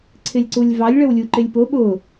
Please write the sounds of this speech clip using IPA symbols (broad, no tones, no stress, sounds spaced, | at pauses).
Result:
ǀʰ ɪ lʲ ǀ u lʲ v ɑ lʲ ɭ ə w lʲ u ǃ ɪ lʲ p ʊ ɓ ʊ